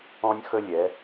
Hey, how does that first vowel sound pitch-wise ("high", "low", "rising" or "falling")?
high